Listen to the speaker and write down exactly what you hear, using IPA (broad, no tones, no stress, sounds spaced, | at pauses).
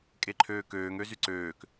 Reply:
kʼ e ǃʰ øː k øː ŋ ø z y ǀ øː k